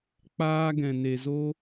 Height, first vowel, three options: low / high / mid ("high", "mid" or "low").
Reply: low